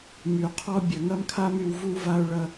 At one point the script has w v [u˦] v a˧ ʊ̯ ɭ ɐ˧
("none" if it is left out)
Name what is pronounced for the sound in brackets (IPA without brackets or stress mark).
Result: u˦